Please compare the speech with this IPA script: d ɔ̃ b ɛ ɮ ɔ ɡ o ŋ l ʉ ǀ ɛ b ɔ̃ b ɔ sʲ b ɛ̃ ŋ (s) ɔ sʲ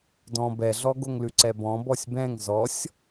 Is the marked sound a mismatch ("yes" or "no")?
yes